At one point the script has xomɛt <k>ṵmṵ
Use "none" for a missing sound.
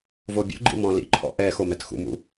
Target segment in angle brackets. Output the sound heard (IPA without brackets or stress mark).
x